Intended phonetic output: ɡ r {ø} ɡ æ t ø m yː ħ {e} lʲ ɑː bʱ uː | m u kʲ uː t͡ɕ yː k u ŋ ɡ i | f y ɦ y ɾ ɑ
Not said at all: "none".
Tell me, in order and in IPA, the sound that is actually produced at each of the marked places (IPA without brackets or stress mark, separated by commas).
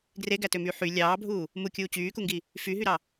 e, y